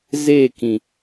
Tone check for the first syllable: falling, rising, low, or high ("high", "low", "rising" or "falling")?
falling